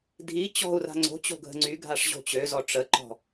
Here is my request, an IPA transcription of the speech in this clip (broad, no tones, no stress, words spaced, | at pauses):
dʱi t͡ɕɔ̤u̯ra̤ ŋ͡ǀo̤t͡ɕo̤ɡʱə̤ ŋ͡ǀyɡʱaʂʑo̤ t͡ɕøzɔ ʈ͡ʂəǃɔ̤